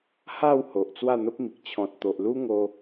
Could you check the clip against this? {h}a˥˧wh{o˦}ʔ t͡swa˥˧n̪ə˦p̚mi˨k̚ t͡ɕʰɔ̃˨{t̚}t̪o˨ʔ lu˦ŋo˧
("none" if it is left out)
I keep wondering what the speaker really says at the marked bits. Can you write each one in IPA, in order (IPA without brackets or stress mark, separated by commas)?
h, o˨, t̚